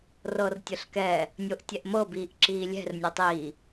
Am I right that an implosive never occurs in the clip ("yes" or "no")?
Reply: yes